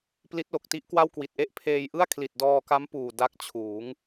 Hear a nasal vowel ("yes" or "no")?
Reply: no